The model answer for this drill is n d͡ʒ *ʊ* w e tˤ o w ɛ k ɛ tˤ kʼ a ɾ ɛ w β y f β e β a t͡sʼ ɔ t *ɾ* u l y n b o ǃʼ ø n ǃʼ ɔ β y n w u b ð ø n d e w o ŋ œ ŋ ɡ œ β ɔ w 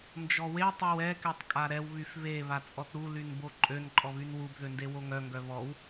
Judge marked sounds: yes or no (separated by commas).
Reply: no, yes